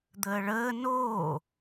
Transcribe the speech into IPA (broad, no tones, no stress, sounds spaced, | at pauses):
d̪ əː ɭ əː n oː